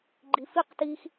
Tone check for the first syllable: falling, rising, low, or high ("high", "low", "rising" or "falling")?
low